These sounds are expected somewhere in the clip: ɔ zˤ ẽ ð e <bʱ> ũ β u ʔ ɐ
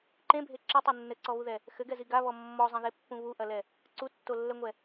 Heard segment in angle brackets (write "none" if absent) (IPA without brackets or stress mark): pː